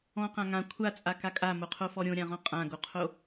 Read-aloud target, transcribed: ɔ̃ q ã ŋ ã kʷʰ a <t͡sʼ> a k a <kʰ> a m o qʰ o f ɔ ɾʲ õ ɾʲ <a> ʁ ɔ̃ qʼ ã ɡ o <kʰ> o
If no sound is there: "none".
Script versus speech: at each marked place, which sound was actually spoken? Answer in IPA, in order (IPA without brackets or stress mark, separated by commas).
t͡sʼ, kʼ, ã, qʰ